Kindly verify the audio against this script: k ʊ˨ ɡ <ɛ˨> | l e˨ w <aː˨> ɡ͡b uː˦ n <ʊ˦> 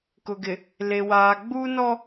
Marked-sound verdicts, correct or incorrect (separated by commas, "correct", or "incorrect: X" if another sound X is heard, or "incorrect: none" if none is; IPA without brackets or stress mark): incorrect: ɪ˨, correct, incorrect: ɔ˦